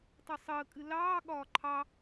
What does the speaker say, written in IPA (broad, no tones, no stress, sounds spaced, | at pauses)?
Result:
tˤ ʌ sˤ əː kʼ ɨ l ɑː ɠ ɒː ǃʰ ɑ